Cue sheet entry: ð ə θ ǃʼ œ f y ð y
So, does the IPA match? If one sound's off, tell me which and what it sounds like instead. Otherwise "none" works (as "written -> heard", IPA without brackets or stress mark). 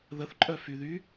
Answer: none